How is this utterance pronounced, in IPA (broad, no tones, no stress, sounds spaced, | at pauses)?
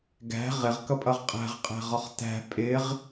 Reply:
ɡ æ̤ ʁ ɪ ʁ k ʌ pʼ ʌ ʁ qʼ æ̤ ʁ qʼ æ̤ ʁ ɒ χ t æ̤ pʼ ɪ ʁ